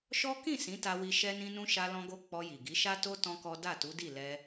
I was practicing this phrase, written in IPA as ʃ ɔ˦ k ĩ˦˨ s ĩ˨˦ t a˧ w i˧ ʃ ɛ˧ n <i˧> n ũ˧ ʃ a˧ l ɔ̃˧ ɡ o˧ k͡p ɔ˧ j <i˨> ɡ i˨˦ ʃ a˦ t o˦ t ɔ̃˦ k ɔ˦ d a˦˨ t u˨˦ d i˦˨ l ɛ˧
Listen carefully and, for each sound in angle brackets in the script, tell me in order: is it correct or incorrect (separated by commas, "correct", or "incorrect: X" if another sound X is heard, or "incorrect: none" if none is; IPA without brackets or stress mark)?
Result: incorrect: ĩ˧, correct